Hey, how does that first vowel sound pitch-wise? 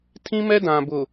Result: high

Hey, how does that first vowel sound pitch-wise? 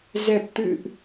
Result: low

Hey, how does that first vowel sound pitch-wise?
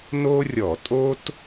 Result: high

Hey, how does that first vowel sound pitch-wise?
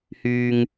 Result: high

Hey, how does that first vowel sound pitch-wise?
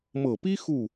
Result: low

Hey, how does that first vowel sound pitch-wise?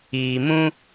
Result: low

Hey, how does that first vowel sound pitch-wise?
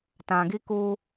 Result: low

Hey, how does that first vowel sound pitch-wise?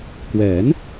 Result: rising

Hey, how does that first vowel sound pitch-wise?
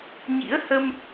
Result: rising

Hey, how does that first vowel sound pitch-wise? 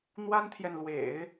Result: high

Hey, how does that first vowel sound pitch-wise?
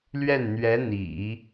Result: falling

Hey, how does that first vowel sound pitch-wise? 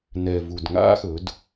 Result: low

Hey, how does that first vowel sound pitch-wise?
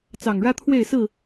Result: low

